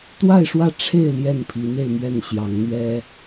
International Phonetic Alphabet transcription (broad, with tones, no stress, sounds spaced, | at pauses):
t̪ w a˥˨ ɪ̯ ʂ w ä˥˨ ʈ͡ʂʰ e˥˨ ɪ̯ l j ɛ˥˨ n pʰ i˨˦ n̪ e˥˨ ɪ̯ m ɥ ɛ˥˨ n ɕ j ɑ˨˦ ŋ n̪ ɥ ɛ˦